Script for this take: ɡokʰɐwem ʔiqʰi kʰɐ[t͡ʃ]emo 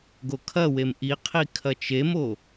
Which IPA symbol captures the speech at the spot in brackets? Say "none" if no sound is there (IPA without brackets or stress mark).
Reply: t͡ʃ